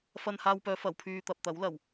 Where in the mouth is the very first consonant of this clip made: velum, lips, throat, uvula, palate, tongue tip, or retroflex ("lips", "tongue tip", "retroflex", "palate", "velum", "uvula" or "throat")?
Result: lips